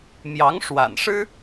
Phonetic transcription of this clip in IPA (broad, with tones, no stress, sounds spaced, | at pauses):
m j ɑ˧˥ ŋ ʂ w a̰˨˩ n ʂ ɻ̩˥